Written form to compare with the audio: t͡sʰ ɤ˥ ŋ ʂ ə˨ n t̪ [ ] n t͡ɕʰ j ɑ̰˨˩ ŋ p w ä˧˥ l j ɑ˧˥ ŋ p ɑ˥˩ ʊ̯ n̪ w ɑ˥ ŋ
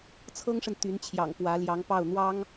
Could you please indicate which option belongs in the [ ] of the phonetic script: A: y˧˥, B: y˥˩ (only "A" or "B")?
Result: A